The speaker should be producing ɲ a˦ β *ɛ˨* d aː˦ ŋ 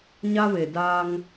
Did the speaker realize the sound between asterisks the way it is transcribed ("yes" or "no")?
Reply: no